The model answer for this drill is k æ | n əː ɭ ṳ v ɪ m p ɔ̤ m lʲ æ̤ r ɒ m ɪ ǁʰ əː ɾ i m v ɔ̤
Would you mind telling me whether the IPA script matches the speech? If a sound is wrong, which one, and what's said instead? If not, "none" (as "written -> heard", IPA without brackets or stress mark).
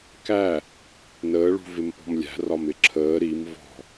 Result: none